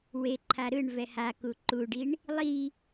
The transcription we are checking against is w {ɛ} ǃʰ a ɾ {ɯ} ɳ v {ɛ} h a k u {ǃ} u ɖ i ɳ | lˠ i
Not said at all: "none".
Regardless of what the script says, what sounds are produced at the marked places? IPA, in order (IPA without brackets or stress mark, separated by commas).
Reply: e, ɯ, ɛ, ǃ